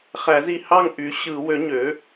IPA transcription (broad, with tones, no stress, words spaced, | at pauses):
χæ˨˩˦zi˨hɑ˦˨ŋ ʔy˩˥ ɕɯ˨˩˦wø˩˥ɲø˩˥